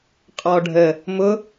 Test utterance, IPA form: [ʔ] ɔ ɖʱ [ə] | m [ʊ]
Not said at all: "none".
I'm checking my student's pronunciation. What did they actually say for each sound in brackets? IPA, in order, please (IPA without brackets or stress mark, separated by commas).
qʼ, ə, ʊ